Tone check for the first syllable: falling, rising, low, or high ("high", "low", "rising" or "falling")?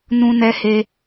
high